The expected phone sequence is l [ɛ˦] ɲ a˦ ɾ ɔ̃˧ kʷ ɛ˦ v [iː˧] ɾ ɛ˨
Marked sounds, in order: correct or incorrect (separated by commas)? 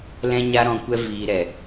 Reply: incorrect, correct